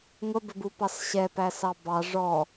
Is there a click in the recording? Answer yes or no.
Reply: no